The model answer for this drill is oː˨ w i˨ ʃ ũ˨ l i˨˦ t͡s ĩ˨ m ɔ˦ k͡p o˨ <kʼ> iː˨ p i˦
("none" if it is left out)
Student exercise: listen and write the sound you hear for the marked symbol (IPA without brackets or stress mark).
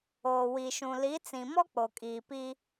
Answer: kʼ